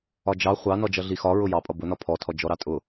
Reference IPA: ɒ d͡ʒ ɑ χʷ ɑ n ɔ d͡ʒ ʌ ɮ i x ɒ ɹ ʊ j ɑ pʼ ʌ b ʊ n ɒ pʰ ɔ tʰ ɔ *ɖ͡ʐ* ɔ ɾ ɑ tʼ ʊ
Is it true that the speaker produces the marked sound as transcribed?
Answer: no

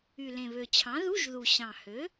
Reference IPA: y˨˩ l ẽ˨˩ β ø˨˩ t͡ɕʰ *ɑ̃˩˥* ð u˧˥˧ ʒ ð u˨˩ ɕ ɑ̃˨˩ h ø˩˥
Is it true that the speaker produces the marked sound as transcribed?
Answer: yes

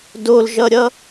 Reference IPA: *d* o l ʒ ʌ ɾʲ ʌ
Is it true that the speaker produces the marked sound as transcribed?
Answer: yes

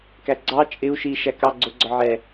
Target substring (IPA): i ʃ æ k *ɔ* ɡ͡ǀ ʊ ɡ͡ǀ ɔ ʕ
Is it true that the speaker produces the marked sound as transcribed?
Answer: no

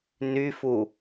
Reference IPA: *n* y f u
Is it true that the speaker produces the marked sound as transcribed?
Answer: yes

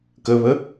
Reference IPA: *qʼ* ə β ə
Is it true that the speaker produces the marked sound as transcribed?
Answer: no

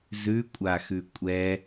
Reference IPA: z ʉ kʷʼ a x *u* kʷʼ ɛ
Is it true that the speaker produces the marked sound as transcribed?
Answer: no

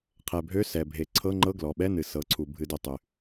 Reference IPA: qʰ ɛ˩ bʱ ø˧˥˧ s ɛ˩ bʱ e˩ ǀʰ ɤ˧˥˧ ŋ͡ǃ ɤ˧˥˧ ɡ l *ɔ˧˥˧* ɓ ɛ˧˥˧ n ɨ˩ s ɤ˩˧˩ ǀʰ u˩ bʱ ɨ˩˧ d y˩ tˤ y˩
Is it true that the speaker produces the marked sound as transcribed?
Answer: no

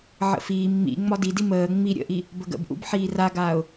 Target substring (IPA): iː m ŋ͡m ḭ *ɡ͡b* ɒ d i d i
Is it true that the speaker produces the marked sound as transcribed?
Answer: no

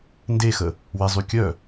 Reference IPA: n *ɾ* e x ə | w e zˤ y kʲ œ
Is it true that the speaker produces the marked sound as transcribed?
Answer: no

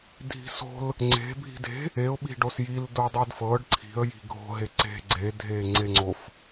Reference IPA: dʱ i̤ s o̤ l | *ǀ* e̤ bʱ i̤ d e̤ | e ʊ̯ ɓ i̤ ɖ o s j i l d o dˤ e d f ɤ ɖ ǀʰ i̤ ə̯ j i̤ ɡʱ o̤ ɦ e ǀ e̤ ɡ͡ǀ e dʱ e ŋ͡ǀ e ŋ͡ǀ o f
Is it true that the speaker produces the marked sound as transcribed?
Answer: no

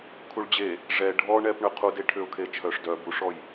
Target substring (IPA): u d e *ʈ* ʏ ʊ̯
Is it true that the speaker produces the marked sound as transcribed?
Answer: no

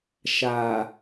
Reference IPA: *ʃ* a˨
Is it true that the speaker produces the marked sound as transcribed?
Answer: yes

